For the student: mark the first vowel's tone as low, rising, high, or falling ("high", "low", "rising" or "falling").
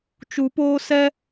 rising